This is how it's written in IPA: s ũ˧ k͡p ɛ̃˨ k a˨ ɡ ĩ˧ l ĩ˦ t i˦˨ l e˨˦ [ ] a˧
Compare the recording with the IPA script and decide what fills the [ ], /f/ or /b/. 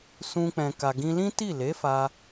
f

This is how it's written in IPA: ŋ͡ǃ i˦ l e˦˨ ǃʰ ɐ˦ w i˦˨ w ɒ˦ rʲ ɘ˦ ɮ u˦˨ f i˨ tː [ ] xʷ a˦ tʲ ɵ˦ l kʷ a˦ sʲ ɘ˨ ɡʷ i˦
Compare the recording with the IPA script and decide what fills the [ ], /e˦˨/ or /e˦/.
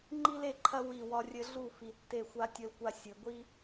e˦˨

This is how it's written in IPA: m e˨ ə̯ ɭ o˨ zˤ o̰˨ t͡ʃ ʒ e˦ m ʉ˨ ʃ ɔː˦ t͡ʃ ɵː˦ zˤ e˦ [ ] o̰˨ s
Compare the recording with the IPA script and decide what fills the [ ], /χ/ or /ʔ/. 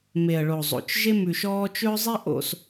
ʔ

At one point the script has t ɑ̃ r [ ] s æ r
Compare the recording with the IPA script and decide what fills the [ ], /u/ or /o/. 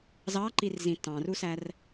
u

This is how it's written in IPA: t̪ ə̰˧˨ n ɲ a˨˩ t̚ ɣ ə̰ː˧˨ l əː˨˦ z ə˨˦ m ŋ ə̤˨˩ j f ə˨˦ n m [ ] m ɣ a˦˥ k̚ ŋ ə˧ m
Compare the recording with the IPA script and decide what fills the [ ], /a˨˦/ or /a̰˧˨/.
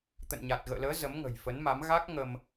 a˨˦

